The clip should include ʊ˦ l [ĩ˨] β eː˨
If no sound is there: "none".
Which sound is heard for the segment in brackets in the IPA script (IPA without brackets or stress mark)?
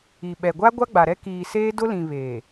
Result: ĩ˨